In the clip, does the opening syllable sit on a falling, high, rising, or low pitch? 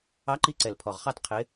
rising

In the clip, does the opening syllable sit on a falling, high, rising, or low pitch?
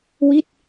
falling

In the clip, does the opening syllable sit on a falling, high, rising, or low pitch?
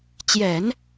low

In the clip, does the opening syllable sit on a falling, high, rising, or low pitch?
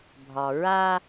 low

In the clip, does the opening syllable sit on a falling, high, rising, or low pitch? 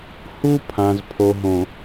high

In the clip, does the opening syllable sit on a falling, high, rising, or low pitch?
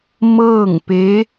falling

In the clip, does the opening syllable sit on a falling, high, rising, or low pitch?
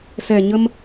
low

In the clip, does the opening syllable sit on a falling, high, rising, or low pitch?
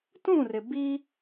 falling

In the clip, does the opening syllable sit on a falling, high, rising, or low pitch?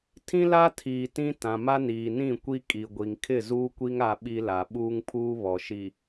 high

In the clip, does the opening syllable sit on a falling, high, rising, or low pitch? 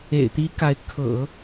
low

